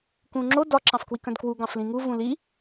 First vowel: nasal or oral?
nasal